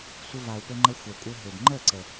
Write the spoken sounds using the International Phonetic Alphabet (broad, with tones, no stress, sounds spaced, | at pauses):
sʷ ə˧ v a˨ u̯ p ɘ˧ ŋ͡ǃ ə˧ xʷ ɛ˨ kʷʼ ɘ˧ ɦ ø˨ d ŋ͡ǃ ə˦˨ ǀ ə˨